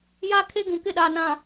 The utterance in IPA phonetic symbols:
j a˦ kʰ e˦ ɡ ũ˨ k ɪ˦˨ ɗ a˨ n ã˨

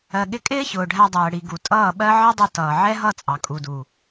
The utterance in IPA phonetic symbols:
ɜ˨ ɠ ɪ˧ kʼ ɪː˦ ç ʊː˨ ɖʱ æ˧ dˤ ɜː˨ ɽ i˨ ɡ u˨ tʼ ʌː˦˨ ɓ ɜ˦ ʕ ʌ˦ dˤ ʊ˧ t ʌː˨ ʕ ɛ˦ ɦ ʌ˦˨ t͡sʼ ɑ˨ kʼ u˨ d u˨

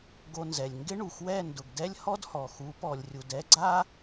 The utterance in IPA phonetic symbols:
ɡ o˧ n z ɛ˨ lʲ ŋ ɡ ɪ˦ ɳ u˨ x w ɛ˦˨ n d ʊ˨ ɡ d ɛ˦ lʲ h ɔ˦ d h ɔ˨ x u˨˦ p ɔ˨ lʲ rʲ u˨ d ɛ˦ ɡ͡ǀ a˦

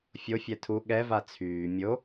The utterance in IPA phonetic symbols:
fʲ o fʲ ɛ tʰ u ɠ ɛ v a t͡sʰ yː mʲ o

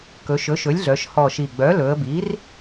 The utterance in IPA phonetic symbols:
k ɵ˩˧ ʃ ɵ˩˥ ʃ ɵ˩˥ lʲ ɮ œ˩˧ ʃ h ɔ˨˩ ʃ i˨˩ ɡ͡b œ˩˥ l ɵ˩˧ ə̯ b i˩˥ r

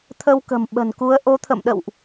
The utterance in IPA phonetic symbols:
t̪ʰ ə˧ w k ə̤˨˩ m ɓ ə̤˨˩ n k u˨˦ ə̯ ʔ o˨˦ t̪ʰ ə̰˧˨ m ɗ ə̰˧˨ w ʔ

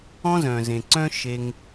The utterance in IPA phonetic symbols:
ɔ̃˦ z œ̃˨ z ẽ˨ ǀ œ̃˦ ʃ e˧ ŋ

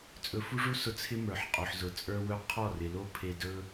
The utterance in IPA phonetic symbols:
t͡sʼ ɵ˧ f u˦ ʐ u˦ s ʊ˧ t͡sʰ ɪ˦ m ə˞˨ ħ qʼ o˨ ħ z ʊ˨ t͡sʼ ə˞˦ w ɵ˦ qʰ ɔ˦˨ r ɪ˨ l o˦ pʰ e˧ d ɵ˦

